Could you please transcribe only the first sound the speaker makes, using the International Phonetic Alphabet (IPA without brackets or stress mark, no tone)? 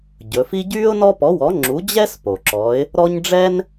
ɟ